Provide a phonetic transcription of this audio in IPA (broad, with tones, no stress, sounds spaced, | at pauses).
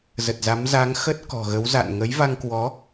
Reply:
z ə˨˩ t̚ z a˨˦ m z a˨˦ ŋ x ə˦˥ t̚ k ɔ̤˨˩ ɣ ə˨˦ w z a̰˧˨ n ŋ ə˨˦ j v a˧ ŋ k w ɔ˨˦